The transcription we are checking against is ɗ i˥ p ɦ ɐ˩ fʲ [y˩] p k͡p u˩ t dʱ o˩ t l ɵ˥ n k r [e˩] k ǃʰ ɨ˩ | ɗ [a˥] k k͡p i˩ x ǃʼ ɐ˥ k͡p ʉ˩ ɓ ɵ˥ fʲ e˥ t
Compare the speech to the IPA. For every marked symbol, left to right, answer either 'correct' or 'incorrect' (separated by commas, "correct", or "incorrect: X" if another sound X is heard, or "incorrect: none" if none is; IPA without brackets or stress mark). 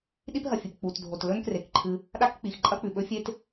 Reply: incorrect: ɨ˩, correct, correct